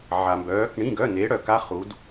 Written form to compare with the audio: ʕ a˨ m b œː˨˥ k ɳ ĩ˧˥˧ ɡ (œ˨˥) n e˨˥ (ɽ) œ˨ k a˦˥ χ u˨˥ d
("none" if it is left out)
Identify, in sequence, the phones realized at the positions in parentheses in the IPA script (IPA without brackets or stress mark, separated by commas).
œ˧˥˧, ɽ